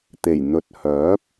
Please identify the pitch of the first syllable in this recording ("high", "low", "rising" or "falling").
low